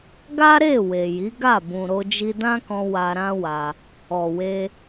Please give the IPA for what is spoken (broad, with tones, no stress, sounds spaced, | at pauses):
ɡ a˦ ɾ e˦˨ w e˨ j i˨˦ ɡ a˦˨ b ũ˨ ɾ o˧ d͡ʒ i˧ d ã˦ k ɔ̃˧ w a˧ ɾ ã˦ w a˧ | ɔ˨ w e˧